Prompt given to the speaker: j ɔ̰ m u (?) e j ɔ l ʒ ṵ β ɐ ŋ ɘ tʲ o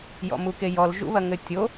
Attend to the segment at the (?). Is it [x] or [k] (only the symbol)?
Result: k